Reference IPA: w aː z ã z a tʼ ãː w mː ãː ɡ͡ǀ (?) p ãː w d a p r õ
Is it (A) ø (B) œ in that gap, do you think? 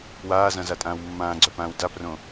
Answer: B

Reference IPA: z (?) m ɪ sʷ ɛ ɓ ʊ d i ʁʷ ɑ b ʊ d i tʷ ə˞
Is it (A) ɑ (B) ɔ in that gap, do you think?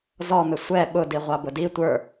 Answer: B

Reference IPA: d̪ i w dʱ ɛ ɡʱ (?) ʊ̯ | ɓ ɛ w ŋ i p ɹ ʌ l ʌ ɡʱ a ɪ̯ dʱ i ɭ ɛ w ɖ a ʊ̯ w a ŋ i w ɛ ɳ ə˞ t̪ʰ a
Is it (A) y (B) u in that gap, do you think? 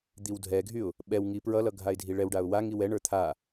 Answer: A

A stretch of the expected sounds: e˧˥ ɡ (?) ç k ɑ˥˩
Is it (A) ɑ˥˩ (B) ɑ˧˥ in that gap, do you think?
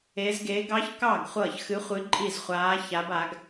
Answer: B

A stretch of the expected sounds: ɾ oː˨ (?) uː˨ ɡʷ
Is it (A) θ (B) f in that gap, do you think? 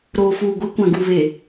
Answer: B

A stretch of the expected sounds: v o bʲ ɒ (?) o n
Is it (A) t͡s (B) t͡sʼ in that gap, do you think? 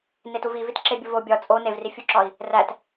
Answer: B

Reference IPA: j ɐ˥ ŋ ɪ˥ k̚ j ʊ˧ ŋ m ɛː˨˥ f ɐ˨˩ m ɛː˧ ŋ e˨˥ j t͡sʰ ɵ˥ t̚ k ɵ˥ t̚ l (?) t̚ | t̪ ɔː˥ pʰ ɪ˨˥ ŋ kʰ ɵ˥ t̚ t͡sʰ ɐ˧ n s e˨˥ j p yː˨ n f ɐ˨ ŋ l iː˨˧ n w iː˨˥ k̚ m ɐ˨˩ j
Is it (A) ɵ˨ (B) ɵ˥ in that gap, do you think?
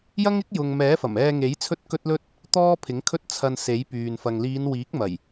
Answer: B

